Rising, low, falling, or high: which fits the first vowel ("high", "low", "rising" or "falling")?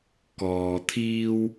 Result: low